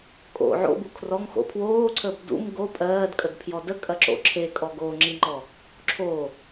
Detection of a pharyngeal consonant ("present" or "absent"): present